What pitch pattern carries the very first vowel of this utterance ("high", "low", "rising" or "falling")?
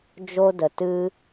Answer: high